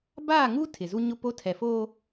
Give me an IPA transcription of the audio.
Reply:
baː˦˨ŋu˦ tʰɪ˨zu˦ɲʊ˦po˦ tʰɛ˨foː˦

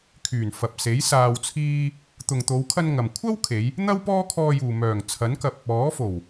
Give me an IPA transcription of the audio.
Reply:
kʰyː˨˩nfɐ˨p̚ se˨˥j saː˧wt͡sʰiː˥ | t̪ʊ˨ŋt̪o˨˧wkʰɐ˧n ŋɐ˨m kʷʰɐ˥wkʰe˨˧j | n̪ɐ˥w pɔː˥kʰɔː˧juː˨ mœː˨˩ŋt͡sʰɐ˨˥nkɐ˧p̚ | ɔː˨˥fo˨˩w

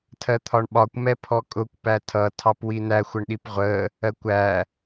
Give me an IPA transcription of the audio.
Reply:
tʰɜt̪ʰɒɳɓɒkʷ mɛpʰɔkʼʊkʷ pætʰʌ tʰɑpwinæ xʷəɳɗipʁʷə | ɜkʷæ

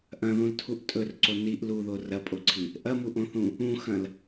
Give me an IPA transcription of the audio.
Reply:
ʔɐ̃ðũltʰuʔ tʼɵrǀo niʔ luðo rɐpʼoǀʰi | ʔɐmuʔõθũ | ũxɐ̃l

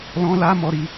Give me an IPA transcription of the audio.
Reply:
lɔ̃˧la˧ mɔ˧ɾi˧

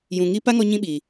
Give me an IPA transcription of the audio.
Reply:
jũ˨ŋi˦ pa˦ŋɔ˧ ɲĩ˦ɓi˨

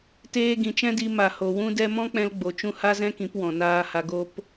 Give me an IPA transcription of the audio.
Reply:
teː˧ɡĩ˨t͡ʃɛ̃˦di˧ ma˨ ho˨wũ˦dɛ˦ mɔ̃˦k͡pɛ̃˧lɡ͡bo˨t͡ʃũ˧ ha˦zɛ̃˦kĩ˨˦p wɔ̃˨naː˧ha˧ ɡo˦p

